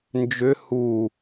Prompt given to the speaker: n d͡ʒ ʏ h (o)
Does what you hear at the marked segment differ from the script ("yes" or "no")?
yes